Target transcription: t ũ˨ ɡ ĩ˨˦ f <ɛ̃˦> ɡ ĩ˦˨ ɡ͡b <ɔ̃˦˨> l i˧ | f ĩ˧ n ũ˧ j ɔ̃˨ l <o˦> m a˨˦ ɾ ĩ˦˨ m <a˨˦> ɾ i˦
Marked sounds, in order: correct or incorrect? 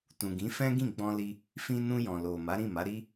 correct, incorrect: ɔ̃˧, incorrect: o˨, correct

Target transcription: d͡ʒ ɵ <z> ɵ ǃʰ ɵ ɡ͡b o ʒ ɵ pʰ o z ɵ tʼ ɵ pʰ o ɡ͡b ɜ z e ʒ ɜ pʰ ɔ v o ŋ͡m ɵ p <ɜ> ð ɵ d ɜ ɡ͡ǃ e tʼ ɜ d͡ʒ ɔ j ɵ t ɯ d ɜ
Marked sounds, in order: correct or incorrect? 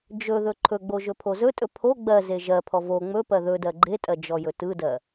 incorrect: ð, correct

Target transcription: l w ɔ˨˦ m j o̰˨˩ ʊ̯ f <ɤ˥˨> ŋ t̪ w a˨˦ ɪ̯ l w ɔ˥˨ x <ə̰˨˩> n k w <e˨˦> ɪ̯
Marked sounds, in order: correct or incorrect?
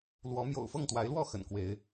correct, correct, correct

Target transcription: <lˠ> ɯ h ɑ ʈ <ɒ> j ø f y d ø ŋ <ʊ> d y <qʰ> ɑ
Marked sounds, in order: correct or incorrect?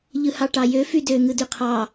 incorrect: ʎ, incorrect: ɑ, incorrect: ɯ, correct

